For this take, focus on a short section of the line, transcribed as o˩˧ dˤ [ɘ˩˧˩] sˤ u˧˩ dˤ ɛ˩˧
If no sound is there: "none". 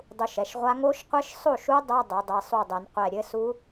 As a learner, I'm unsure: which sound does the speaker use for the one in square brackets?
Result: ɘ˩˧˩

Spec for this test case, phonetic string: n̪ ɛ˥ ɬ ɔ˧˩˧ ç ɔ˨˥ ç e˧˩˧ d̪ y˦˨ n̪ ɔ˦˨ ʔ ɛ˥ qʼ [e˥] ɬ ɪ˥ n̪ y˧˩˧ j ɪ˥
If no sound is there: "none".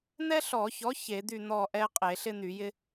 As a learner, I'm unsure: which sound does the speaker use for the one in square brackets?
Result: e˧˩˧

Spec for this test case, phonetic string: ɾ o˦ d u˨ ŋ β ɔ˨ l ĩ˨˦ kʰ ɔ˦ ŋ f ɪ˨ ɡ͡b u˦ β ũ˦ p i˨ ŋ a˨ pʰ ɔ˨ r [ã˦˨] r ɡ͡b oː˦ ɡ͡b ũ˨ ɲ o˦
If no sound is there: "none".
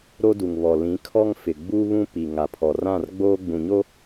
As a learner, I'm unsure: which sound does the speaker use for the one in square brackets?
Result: ã˦˨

